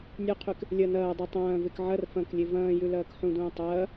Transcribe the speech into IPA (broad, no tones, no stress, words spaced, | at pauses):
nʲuqʰyk | lʲɐ nɐːdˤu tˤɐ̃ːvek ʕɐr fɐ̃klʲe vɐ̃ːjʉ lɐːkħũdũː tˤɐː